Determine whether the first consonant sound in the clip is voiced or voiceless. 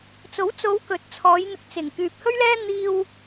voiceless